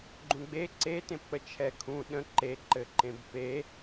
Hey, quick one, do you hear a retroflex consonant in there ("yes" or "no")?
no